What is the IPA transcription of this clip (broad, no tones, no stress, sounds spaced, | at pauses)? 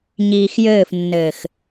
ɲ iː x j ɘː f nː ɘː x